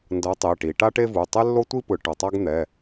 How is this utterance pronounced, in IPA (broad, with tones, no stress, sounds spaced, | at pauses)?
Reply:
n d ʌ˨˥ tˤ e˩˧˩ ʈ i˩˧ ʈ a˥ ʈ e˥ v u˩˧˩ tˤ ɛ˥ lː o˥ tʷ i˥ p ɯ˩˧ ʈ ʌ˩˧˩ tˤ a˥ ɡ n̪ ɛ˩˧˩